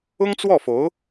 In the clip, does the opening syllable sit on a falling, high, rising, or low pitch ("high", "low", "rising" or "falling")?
high